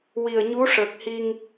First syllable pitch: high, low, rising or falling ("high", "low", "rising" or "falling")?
low